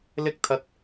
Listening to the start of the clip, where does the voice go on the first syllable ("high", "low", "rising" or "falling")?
high